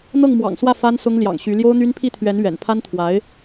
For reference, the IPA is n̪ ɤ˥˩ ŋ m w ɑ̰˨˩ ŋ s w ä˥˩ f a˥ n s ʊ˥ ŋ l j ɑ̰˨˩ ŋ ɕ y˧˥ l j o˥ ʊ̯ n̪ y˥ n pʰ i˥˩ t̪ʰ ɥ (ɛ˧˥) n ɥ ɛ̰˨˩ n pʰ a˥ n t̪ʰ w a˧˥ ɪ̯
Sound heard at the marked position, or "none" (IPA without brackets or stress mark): ɛ˧˥